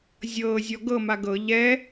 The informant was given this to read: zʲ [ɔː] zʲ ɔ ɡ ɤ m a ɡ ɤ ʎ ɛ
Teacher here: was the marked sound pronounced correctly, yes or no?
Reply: no